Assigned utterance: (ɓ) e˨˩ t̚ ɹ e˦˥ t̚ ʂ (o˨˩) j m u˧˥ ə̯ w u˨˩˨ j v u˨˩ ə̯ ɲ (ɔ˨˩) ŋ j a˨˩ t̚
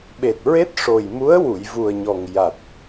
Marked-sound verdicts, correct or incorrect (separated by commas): correct, correct, correct